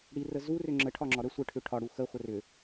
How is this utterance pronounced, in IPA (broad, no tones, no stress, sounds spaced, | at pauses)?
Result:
ɽ i r ə z u r ʏ ŋ͡ǁ ə ʈʰ ɒ ŋ͡ǁ ɒ ɾ ə sʷ ə ʈʰ ʏ ʈʰ ɒ ɽ u x ə χʷ ə r ʏ